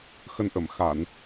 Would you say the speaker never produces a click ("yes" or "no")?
yes